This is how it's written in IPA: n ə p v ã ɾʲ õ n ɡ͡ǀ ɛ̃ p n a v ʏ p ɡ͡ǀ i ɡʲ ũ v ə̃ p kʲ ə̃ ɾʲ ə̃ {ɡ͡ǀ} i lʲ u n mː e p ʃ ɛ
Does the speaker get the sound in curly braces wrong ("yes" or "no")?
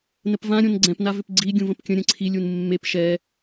yes